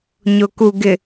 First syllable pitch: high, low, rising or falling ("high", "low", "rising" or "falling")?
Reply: low